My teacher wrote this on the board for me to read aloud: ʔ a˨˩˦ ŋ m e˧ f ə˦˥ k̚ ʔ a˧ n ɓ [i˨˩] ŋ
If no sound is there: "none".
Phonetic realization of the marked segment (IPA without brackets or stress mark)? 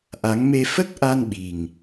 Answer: i˨˩